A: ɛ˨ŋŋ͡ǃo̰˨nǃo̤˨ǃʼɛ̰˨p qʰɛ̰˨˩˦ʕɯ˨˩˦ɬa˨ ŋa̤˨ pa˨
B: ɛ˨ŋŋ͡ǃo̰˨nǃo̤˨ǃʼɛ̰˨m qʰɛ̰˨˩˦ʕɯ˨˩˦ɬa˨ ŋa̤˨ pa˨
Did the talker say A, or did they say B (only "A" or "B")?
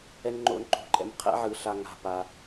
B